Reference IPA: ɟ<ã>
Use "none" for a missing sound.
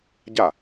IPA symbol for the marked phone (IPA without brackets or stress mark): a